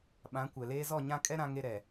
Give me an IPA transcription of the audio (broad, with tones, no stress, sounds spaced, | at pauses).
ɓ ã˨˦ kʷ ɛ˨ l eː˦ z ɔ˦˨ ɲ ã˦ kʼ ɛ˦ ɾ ã˦ ŋ e˦ ɾ ɛ˨